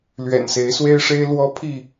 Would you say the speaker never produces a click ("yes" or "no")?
yes